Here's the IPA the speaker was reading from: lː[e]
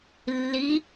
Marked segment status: incorrect: i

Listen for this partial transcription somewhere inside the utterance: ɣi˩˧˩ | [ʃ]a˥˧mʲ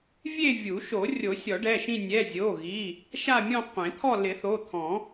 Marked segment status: correct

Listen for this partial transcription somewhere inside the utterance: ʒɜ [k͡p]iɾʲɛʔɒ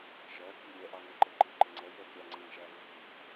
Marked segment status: incorrect: k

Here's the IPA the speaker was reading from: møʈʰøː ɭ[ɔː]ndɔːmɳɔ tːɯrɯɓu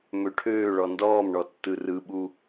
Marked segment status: incorrect: ɔ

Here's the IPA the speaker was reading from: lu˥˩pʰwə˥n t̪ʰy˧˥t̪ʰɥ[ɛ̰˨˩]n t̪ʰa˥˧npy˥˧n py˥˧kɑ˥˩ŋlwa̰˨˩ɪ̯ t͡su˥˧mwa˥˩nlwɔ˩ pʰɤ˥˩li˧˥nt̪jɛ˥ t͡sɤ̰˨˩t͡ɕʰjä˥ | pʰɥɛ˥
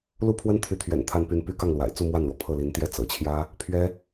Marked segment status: correct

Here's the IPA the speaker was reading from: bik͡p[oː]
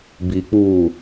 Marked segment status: incorrect: uː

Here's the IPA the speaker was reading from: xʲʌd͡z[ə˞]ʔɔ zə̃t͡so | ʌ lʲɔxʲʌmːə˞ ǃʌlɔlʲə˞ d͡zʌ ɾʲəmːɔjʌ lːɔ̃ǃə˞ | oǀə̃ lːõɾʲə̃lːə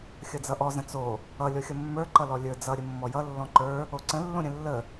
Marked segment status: incorrect: ʌ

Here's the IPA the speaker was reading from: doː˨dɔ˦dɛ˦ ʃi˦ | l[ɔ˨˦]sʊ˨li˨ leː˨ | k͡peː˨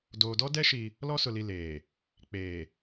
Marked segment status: incorrect: ɔ˦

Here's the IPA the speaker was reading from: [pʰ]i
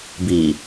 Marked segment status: incorrect: b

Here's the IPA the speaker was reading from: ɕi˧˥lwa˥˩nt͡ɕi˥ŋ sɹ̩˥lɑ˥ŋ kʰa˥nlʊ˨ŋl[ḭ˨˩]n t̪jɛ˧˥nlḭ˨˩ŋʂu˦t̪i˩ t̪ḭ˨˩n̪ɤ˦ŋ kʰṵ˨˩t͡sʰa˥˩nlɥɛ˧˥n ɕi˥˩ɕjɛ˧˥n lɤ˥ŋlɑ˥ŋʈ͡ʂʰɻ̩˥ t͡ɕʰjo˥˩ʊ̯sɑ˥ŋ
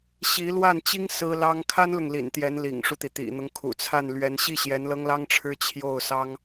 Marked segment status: correct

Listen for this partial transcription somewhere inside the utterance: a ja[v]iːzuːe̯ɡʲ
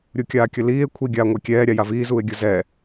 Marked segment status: correct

